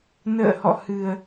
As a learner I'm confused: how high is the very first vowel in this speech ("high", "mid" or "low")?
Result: mid